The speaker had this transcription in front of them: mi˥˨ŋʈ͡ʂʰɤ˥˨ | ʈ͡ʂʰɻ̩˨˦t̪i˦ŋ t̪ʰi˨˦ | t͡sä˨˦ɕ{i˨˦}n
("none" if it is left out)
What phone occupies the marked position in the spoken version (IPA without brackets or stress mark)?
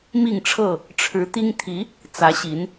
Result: i˨˦